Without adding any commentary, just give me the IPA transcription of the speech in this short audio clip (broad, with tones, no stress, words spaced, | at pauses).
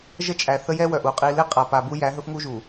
ʒə˦t͡ʃʼæ˨θə˦ jɛ˦wœ˨ʔ u˨qʼi˦ le˦qʼa˨ pa˨bu˦jæ˨˦ ɦɵ˦fŋu˦ʒu˨